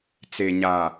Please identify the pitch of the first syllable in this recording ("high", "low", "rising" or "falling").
low